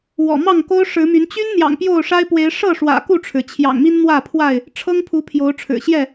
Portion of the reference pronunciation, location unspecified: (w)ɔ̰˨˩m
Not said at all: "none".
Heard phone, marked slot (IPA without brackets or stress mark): w